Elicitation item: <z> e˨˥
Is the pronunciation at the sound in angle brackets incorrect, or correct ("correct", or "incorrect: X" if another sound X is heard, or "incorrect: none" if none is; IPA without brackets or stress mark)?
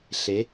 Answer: incorrect: ɬ